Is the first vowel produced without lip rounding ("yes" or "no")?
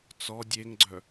no